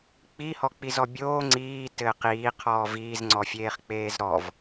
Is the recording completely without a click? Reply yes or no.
no